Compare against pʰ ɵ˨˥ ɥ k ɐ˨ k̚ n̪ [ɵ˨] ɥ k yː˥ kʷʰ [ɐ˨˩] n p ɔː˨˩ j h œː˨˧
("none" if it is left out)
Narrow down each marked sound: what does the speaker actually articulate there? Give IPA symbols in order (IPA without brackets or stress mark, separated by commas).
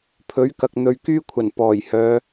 ɵ˨, ɐ˨˩